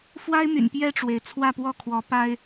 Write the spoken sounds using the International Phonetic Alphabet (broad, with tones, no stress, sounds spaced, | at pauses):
f w a˦ ɪ̯ m y̰˨˩ n p j ɛ˥˨ ʈ͡ʂ w e˩ ɪ̯ t͡sʰ w ä˥˨ p w ɔ˥˨ kʰ w ɔ˨˦ p a˦ ɪ̯